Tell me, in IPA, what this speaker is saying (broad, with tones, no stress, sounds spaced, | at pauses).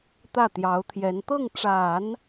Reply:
t̪ ä˥˩ t̪ j ɑ˧˥ ʊ̯ t̪ʰ j ɛ˧˥ n t̪ ɤ˥˩ ŋ ʈ͡ʂ a˨˩˦ n